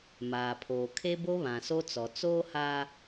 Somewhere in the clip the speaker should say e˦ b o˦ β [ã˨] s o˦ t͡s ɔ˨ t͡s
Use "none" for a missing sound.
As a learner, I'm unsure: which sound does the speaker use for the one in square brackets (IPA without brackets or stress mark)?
ã˨